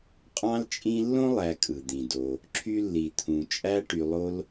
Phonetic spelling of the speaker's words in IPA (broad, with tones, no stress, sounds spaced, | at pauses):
qʼ ɑ̃˦ l t͡ʃʼ ĩ˦ lː õ˥ lˠ æ˨ kʼ ɯ˩ d̪ ĩ˩ d o˨ | ǁʰ y˦ lː i˩ t̪ʰ ũ˩ t͡ʃʼ æ˦ ʈ y˨ lˠ o˦ l